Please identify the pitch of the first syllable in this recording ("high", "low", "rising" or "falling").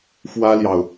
high